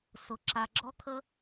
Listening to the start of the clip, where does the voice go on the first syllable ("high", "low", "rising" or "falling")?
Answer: low